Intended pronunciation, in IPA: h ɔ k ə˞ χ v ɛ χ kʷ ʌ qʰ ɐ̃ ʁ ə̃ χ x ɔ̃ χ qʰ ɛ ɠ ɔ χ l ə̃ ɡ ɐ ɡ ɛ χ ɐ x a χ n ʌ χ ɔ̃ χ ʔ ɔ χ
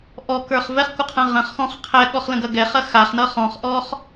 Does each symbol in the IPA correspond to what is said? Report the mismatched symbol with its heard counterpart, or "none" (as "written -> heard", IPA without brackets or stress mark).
h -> ʔ